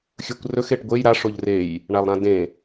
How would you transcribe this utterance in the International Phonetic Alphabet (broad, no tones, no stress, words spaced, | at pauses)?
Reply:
xʲɵkʷ rɵx eʈɡʷej ɾa ʂoʎrej | ɳalˠɾãdẽ